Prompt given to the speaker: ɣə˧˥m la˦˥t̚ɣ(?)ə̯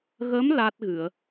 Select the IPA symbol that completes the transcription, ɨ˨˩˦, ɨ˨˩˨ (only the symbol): ɨ˨˩˨